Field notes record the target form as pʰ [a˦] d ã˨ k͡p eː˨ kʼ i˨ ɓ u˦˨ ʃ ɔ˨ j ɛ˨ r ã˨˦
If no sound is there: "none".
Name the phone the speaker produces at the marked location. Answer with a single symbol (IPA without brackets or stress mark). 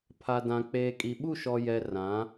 a˨